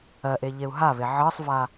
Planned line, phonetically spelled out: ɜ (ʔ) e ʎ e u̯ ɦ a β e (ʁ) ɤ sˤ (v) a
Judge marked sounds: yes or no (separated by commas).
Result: yes, no, yes